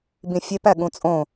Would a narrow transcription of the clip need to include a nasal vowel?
yes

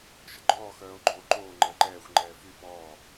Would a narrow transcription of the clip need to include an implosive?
no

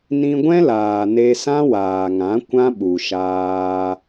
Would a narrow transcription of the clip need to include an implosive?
yes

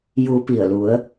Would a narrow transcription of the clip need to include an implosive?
no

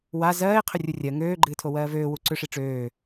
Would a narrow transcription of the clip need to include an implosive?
no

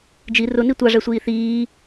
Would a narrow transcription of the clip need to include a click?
no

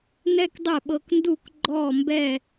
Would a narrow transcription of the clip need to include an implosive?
yes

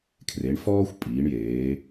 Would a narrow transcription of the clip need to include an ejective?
yes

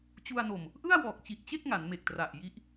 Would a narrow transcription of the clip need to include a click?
no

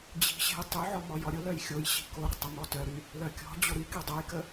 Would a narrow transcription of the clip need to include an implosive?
no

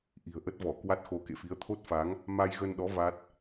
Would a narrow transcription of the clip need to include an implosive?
yes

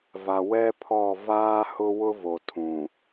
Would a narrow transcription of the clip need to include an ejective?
no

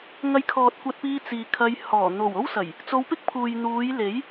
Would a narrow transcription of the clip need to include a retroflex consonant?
no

